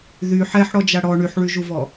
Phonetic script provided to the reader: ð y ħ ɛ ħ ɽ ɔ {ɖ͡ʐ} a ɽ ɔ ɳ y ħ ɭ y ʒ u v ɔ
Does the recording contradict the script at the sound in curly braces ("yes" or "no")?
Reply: yes